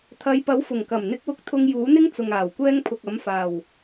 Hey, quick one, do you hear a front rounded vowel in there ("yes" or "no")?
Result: no